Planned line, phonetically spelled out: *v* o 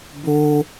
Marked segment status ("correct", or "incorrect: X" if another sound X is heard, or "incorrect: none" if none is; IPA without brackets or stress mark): incorrect: b